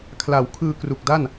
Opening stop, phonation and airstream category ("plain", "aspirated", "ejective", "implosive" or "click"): aspirated